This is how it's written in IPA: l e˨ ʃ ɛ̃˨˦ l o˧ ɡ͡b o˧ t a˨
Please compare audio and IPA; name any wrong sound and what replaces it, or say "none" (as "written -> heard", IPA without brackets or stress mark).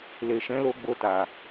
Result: none